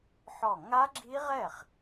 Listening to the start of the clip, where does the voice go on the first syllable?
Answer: falling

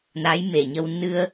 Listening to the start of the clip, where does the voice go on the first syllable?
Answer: rising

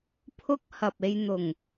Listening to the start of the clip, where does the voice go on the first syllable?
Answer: high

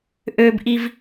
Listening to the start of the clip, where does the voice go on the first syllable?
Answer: high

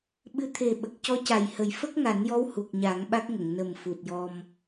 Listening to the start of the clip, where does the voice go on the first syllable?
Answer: rising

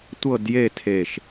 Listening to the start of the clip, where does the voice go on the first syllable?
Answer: falling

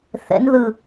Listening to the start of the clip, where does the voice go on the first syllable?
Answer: rising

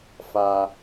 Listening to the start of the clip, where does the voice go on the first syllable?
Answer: high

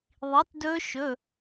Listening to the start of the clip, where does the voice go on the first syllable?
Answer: rising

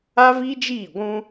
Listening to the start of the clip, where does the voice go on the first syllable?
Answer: high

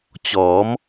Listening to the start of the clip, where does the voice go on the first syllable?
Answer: rising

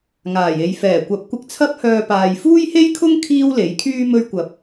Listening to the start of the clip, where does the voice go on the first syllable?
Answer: low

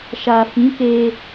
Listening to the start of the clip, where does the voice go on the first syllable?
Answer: low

